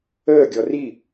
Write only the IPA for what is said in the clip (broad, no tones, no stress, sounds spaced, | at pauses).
əː ɡʲ ɔ r i